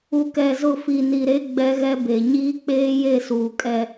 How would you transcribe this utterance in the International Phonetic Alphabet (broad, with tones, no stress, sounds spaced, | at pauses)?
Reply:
u˨ k ɛ˨ z ʊ˦˨ f i˨ n i˨ ɾ e˦ ɡ͡b ɛ˦ ɣ ɛ˦ b e˨ ɲ iː˦ k͡p eː˦ j e˦˨ s uː˨ kʼ ɛ˦